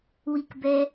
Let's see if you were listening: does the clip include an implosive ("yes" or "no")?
no